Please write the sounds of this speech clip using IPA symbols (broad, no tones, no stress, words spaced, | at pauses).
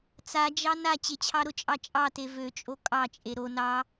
t͡sad͡ʒɑ na t͡ɕet͡ɕʰɑɾʊt͡ʃʼɑ t͡ʃʼɑte vøt͡ʃʼo kʼɑt͡ʃʼe ɾo nɑ